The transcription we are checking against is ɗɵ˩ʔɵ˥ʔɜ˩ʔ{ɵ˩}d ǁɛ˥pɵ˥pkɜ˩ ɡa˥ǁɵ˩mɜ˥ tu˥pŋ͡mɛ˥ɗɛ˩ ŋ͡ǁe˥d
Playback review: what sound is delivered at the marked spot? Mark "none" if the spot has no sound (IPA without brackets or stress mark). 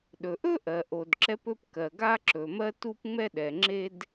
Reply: o˩